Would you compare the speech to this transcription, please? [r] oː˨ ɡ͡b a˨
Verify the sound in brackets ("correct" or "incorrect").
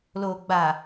incorrect